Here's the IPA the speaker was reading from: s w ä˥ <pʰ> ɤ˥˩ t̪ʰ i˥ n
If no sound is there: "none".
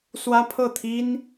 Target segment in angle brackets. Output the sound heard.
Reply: pʰ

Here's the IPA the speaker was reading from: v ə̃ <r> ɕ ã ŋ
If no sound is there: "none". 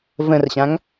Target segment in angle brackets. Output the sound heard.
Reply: r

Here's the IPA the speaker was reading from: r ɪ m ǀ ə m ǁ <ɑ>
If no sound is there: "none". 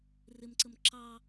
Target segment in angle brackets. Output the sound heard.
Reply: ɑ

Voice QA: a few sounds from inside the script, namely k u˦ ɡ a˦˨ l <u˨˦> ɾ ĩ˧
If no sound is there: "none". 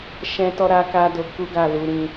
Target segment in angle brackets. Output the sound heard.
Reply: u˨˦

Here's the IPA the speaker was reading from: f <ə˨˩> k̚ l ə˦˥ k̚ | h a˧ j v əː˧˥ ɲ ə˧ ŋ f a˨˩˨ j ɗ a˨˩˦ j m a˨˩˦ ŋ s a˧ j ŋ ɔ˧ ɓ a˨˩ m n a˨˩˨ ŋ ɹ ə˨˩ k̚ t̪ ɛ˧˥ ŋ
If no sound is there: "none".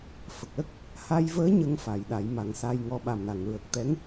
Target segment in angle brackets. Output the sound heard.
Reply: ə˨˩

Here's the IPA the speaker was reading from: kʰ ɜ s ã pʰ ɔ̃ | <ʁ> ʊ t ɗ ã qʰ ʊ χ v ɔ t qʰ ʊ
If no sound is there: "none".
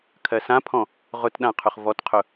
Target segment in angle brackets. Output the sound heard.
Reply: ʁ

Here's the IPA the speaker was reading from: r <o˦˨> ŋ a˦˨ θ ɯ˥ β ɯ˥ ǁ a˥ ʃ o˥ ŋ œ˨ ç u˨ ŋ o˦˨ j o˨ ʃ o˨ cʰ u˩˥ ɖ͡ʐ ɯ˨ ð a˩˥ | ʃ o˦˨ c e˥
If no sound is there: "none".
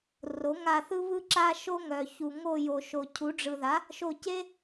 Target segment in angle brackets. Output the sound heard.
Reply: o˩˥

